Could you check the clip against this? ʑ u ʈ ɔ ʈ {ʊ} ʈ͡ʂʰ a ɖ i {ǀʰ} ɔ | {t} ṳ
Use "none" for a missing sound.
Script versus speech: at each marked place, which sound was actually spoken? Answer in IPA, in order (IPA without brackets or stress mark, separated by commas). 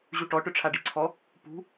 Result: ʊ, ǀʰ, p